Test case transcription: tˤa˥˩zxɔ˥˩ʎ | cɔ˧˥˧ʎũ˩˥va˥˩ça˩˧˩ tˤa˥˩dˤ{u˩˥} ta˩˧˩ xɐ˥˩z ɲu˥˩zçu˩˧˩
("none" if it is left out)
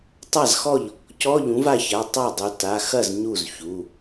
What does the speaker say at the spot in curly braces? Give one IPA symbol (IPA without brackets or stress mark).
u˩˧